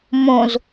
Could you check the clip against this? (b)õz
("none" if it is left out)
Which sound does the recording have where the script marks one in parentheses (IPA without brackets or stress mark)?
m